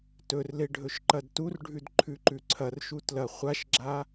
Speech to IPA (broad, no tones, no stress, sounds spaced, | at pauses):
t ɵ r l e ɖʱ ɵ ʃ ǃ ɐ d t u r ɖʱ ʉ d ǃʰ ʉ ǃ ʉ ǀʰ ɐ r ʃ u t l ɐ χʷ a ʃ ɡ͡ǁ a